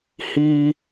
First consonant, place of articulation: glottal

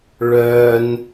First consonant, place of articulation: retroflex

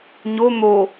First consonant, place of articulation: palatal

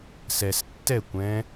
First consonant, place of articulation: alveolar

